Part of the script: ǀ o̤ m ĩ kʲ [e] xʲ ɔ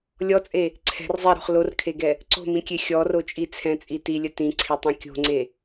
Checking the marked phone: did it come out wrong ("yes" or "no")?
no